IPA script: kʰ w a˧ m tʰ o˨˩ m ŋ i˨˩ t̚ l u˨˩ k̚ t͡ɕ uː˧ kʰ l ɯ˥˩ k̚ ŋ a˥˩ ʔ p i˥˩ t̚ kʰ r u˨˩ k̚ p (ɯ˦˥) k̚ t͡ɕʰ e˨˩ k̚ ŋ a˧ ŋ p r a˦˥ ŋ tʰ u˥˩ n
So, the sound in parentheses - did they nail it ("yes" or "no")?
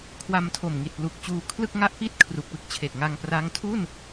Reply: yes